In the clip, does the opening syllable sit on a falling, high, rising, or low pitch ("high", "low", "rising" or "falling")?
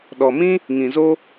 low